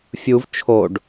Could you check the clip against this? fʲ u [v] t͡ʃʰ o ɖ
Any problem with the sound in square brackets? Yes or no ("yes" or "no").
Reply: no